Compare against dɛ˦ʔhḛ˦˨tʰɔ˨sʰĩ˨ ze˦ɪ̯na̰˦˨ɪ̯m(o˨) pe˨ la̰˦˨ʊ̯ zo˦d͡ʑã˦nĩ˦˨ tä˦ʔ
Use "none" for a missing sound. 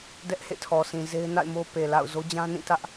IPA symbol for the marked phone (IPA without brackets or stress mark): o˦